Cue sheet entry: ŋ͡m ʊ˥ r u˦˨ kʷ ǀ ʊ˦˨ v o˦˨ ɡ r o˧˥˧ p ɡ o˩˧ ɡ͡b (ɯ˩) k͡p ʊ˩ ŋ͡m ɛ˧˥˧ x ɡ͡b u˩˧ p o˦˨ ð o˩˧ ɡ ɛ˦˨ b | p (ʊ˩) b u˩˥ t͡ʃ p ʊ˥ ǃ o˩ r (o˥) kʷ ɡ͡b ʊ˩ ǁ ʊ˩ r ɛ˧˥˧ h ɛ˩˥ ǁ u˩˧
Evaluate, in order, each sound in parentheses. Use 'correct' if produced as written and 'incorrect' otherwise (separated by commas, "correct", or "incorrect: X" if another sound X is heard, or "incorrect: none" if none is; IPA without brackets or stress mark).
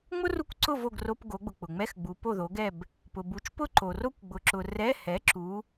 incorrect: ʊ˩, correct, correct